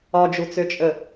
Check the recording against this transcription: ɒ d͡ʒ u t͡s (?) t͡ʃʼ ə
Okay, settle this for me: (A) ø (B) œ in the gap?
A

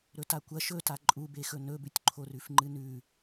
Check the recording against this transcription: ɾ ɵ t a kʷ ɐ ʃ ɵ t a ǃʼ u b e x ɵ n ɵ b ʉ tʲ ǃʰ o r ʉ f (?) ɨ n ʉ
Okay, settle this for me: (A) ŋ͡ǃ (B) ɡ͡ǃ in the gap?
A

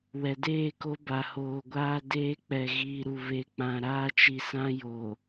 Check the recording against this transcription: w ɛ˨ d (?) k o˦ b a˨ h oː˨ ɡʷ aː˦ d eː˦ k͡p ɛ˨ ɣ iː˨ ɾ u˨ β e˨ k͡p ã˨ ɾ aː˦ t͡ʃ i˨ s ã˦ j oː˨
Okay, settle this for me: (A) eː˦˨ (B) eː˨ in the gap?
A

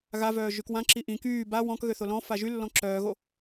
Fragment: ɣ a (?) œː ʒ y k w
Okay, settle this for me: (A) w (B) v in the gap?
B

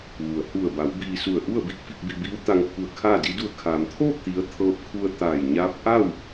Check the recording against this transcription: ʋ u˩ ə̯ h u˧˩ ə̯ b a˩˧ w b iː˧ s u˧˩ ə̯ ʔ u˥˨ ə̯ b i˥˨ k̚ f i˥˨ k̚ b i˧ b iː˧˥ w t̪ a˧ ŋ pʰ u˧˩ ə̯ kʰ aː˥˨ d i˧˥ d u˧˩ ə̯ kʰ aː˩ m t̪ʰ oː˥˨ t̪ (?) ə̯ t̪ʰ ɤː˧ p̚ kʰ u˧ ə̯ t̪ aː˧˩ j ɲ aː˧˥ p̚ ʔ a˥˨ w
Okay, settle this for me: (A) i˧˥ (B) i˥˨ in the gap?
A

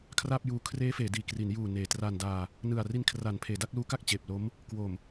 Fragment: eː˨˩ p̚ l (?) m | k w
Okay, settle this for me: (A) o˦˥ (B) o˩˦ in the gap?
A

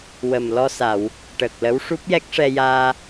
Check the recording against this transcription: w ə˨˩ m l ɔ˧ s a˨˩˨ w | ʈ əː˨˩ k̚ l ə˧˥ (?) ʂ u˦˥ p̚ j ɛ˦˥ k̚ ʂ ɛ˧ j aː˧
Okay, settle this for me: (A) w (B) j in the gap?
A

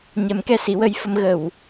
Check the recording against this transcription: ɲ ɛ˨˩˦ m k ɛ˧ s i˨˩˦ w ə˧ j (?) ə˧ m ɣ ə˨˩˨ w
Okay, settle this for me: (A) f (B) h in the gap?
A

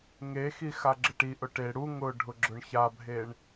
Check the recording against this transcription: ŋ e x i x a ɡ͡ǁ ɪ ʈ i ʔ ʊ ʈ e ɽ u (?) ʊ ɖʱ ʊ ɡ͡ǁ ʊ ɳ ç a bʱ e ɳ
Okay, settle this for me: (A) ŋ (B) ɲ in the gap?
A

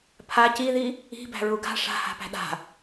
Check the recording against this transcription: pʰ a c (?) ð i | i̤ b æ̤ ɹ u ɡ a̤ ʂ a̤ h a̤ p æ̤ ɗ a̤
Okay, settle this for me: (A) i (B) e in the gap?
A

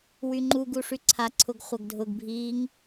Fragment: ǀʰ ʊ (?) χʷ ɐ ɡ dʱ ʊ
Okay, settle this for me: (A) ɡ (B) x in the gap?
A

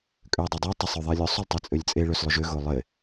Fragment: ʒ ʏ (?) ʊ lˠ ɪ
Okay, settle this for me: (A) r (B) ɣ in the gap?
B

